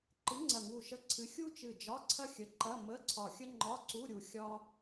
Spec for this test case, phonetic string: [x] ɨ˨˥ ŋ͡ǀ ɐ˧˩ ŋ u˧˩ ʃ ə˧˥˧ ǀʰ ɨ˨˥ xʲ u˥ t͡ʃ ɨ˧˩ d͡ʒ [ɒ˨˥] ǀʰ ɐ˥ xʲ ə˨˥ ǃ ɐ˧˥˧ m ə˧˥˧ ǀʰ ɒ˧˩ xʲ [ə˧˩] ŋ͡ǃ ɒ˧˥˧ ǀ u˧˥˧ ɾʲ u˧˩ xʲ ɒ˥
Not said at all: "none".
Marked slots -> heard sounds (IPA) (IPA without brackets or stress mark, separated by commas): ǃ, ɒ˧˥˧, ə˥